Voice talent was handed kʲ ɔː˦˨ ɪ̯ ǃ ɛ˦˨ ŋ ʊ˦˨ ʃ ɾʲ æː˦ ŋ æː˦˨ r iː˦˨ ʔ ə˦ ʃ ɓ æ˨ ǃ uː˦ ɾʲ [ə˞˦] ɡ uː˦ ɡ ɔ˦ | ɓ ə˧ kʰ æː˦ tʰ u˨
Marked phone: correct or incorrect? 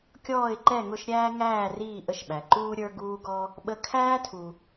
correct